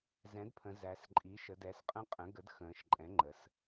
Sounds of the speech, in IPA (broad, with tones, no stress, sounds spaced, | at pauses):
z ɛ̃˩˥ d pʰ ə̃˩˧ z æ˩˧ s ǃʼ i˩˥ ʃ ə˩˧ d ɛ˩˧ s qʼ ə̃˧ qʼ ə̃˩˥ ɡ ə˩˥ d x ə̃ː˩˧ ʃ ǃʼ ɛ̃˩˥ ŋ͡ǃ ə˩˧ s